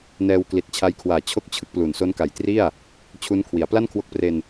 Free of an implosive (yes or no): yes